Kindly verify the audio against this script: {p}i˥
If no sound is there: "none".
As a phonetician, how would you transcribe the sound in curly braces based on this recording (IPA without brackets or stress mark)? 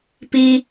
p